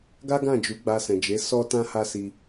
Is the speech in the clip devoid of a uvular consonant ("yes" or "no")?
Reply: yes